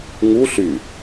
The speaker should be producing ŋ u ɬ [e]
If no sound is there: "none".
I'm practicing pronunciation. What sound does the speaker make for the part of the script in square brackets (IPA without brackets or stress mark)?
y